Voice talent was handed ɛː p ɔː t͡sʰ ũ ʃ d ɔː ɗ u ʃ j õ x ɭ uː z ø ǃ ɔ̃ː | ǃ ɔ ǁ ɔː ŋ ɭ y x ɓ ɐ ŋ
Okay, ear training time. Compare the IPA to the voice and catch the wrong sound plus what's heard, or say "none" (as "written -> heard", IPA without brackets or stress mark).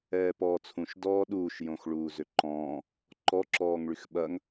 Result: u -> uː